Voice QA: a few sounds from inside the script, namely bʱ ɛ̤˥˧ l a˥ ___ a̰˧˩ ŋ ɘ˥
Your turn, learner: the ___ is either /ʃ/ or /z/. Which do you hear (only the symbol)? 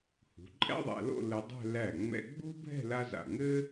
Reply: z